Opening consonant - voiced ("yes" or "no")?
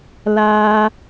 yes